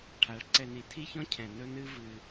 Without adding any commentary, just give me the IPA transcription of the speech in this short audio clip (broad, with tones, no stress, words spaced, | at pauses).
ʈʰa˨˦ɭ ǀɛ˨ni˨ tʰi˦çɔ̃˦cʰɛ̃˨ nɵ˦ nɨ˦ vɨ˦